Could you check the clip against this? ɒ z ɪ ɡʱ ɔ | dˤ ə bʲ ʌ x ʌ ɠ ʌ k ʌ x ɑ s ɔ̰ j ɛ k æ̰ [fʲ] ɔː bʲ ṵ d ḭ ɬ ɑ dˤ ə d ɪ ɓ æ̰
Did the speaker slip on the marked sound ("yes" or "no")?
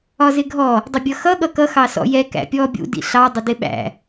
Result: yes